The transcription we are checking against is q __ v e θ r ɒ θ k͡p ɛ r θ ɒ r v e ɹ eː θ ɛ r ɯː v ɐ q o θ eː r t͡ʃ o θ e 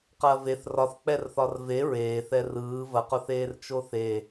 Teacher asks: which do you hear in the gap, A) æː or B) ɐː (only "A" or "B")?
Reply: B